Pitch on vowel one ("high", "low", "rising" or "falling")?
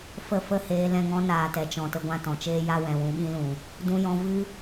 falling